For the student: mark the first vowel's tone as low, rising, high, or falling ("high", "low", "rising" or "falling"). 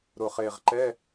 low